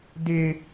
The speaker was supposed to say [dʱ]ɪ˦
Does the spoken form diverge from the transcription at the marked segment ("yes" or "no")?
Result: yes